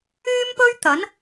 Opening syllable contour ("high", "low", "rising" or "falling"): high